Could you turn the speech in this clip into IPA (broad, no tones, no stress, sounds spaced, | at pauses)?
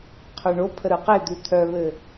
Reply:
qʰ œ ɳ o pʰ ə ɾ ɯ q e d̪ ʉ t̪ʰ œ β ɘ